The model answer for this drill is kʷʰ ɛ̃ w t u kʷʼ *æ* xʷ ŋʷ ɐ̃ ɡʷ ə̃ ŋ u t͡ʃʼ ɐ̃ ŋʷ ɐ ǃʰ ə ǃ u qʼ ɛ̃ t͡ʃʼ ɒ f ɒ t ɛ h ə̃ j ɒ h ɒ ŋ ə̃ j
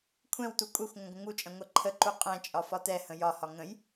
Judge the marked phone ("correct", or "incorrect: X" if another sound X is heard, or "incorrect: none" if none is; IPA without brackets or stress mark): incorrect: ɛ